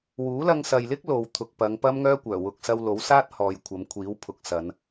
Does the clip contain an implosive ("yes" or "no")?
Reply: no